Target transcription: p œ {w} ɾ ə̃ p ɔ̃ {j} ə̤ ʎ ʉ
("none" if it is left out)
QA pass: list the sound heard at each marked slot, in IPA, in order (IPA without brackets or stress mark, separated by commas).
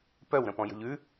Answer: w, j